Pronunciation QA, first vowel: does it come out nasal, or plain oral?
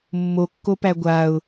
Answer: oral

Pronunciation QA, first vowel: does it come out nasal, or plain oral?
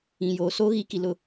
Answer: nasal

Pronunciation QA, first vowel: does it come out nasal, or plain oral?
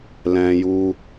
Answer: nasal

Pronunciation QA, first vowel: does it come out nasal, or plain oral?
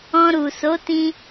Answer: nasal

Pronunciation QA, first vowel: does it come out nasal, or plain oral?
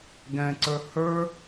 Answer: nasal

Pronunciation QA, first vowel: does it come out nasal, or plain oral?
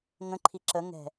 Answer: nasal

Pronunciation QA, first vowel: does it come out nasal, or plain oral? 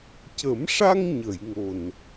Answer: oral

